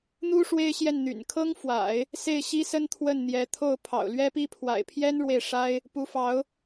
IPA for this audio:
n̪ u˥ ʂ w e˥ ɪ̯ ɕ j ɛ˥˩ n n̪ y̰˨˩ n kʰ ɤ˥ ŋ f w a̰˨˩˦ ɪ̯ | s e˥˩ ɪ̯ ɕ i˥ s ə˥ n t̪ʰ w ə˥˩ n n̪ j ɛ˧˥ t̪ʰ o˥˩ ʊ̯ pʰ ɑ̰˨˩ ʊ̯ l ɥ ɛ˥ p i˥ pʰ w a̰˨˩ ɪ̯ pʰ j ɛ˥ n ɻ w e˥˩ ɪ̯ ʂ a˥ ɪ̯ | p u˧˥ f ɑ˧˥ ʊ̯

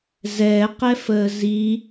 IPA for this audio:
z ɛ q ɛ f əː z i

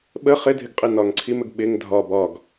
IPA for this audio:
ɓ ə χ ɪ dʱ ɪ ɡ qʼ ɪ n ɒ ŋ ǀʰ i m ə ɡ ɓ ɪ ŋ dʱ ɒ b ɒ ɡ

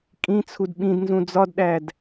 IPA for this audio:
kʼ ĩ t͡sʰ u d ɓ ĩ d n z ũ d͡z ɒ d ɗ æ d

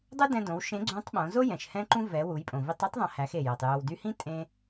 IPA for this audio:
dˤ u˥ d ɛ̃˧ d õ˩˧ w ʃ ẽ˧˥ ɡ͡ǀ ũ˧˥ tˤ ɓ õ˩˧ z o˥ j ɛ̃˩ ʃ h ɛ̃˥ ǃ ũ˥ v ɛ˩˧ w u˩˧ j pʼ õ˩ v i˧ tˤ o˥ tˤ ðˤ ɛ̃˩˧ h æ˩˧ x e˩ j ɛ˩ tˤ j o˩ w d y˧ h ĩ˥ tʼ ẽ˧

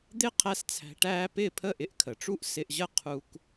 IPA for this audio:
d̪ ɪ˦ qʰ æ˦ s t͡sʰ æ̤˧ ʈ æː˦ p ɪː˦˨ pʰ ə˦˨ ʔ ɪ˧ ʔ kʰ ə˨ ʈ͡ʂ u˦ ʔ s ɪ˧ ʔ ʑ ə˦ qʰ u˧ k

